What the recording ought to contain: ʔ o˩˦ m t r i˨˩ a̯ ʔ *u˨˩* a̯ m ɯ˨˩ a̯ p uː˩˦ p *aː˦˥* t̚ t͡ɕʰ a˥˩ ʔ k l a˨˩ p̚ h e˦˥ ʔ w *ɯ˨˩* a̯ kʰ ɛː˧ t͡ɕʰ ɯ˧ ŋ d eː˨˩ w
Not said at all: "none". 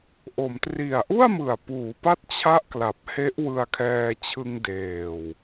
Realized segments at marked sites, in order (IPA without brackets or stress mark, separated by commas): u˥˩, a˦˥, ɯ˧